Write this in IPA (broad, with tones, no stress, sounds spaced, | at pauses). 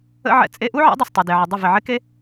ə̰˦ ʕ ɛ̰˧ t͡sʼ e˧ ʔ u˦ ʕ ɛ̰˨˦ dˤ ɛ˨ s tˤ y˨ d e˨ ʕ ə˨ dˤ ɪ˦˨ v ɪ˨ ʕ ɪ˦ k e˦